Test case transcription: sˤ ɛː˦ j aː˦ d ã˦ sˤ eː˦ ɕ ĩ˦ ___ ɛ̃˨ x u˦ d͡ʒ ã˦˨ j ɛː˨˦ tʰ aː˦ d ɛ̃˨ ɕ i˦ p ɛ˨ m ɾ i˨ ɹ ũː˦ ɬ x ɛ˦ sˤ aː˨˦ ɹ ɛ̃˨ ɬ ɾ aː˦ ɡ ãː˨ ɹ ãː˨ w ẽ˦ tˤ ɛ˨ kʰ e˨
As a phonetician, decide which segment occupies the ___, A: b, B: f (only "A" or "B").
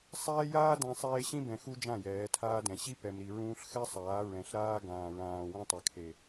A